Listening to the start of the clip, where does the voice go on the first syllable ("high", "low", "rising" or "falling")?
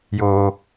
high